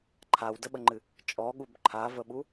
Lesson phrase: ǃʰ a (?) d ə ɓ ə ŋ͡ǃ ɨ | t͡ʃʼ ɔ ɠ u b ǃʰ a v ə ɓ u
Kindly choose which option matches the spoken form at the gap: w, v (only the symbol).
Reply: w